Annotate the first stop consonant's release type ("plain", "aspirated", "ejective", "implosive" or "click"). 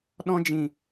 implosive